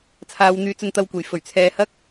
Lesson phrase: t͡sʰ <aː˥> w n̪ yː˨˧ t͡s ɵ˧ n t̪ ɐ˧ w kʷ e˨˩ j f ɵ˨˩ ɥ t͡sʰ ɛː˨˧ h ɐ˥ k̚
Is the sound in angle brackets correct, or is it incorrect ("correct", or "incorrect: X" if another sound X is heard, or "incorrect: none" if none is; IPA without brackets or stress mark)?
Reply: incorrect: aː˨˧